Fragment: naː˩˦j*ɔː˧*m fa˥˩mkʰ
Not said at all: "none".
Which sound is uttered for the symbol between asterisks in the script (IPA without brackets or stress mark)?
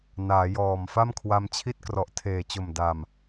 ɔː˨˩